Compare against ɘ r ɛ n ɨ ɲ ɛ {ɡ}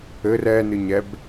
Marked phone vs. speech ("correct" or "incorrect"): incorrect